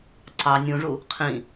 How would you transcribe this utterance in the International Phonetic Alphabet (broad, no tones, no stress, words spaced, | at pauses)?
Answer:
ǀɑ nʲũʐu | qʰĩ